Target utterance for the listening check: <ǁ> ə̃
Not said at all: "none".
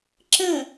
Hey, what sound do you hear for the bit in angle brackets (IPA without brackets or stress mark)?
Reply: ǁ